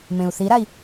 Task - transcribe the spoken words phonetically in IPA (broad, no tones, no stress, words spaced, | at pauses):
mẽu̯θiɾai̯